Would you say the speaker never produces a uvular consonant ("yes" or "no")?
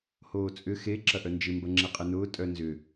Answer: no